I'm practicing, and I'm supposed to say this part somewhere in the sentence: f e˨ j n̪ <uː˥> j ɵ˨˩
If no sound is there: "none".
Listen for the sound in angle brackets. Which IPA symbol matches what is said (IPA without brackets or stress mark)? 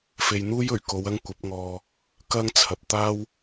uː˥